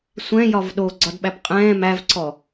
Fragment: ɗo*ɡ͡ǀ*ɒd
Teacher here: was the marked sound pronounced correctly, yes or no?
yes